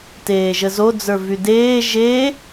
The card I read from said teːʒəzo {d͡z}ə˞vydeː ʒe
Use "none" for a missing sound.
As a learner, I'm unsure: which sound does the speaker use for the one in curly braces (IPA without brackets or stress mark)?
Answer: d͡z